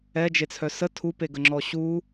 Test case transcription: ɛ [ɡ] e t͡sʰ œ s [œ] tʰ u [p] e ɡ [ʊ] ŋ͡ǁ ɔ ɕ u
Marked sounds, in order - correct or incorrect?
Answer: incorrect: d͡ʒ, incorrect: ə, correct, incorrect: ə

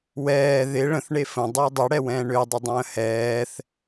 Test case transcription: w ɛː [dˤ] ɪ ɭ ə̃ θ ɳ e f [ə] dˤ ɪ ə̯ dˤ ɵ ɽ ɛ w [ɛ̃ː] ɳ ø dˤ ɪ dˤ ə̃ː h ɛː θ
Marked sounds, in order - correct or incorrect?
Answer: incorrect: ð, incorrect: ə̃, correct

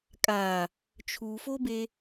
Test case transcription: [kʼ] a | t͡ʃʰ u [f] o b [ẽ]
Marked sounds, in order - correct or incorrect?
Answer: correct, correct, incorrect: e

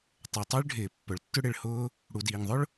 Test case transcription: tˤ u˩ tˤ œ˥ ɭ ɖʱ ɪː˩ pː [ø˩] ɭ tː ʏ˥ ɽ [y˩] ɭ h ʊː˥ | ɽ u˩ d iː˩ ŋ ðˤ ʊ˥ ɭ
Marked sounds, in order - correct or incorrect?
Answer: incorrect: œ˩, incorrect: ɪ˩

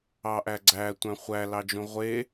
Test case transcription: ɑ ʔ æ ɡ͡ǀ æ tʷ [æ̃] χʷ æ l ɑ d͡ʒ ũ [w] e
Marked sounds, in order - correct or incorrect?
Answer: correct, incorrect: ʁʷ

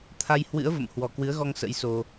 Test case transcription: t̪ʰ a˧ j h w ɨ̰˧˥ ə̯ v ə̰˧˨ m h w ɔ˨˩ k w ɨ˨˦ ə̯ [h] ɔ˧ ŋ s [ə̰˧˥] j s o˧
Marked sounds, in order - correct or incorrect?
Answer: incorrect: ɣ, correct

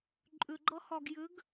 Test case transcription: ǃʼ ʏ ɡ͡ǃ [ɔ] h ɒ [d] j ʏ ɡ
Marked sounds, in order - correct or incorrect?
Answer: incorrect: ʌ, incorrect: ɡ

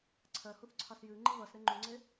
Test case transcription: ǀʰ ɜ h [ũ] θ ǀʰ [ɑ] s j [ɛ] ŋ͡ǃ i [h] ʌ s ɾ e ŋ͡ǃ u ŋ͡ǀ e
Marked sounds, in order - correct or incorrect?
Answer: incorrect: u, correct, incorrect: ɨ, incorrect: β

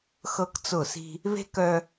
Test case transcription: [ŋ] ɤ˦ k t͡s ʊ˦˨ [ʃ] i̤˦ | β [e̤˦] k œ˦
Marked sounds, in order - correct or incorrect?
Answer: incorrect: x, incorrect: s, correct

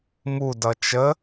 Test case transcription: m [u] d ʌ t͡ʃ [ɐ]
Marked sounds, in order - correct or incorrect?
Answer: correct, incorrect: ə

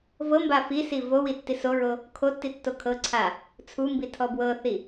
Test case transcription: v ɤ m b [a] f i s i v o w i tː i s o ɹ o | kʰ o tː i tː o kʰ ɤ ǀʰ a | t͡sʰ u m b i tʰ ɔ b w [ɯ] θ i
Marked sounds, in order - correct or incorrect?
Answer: correct, incorrect: ɤ

